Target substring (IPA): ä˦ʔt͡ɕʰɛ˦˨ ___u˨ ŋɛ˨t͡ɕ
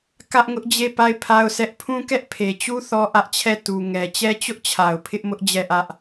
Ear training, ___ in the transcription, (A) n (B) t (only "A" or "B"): B